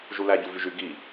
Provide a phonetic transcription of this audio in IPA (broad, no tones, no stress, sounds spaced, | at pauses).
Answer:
ʒ u l æ ɟ u v y ʒ y ɡ i